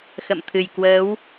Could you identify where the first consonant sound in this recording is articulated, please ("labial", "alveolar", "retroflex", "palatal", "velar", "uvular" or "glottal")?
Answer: velar